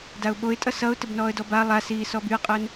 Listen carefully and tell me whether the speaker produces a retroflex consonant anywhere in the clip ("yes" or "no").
no